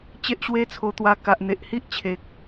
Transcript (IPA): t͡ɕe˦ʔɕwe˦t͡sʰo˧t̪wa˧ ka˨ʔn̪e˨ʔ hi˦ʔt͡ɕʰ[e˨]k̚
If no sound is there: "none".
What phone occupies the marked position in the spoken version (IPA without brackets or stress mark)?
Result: e˨